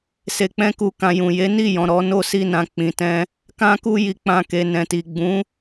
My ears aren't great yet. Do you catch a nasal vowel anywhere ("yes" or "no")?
yes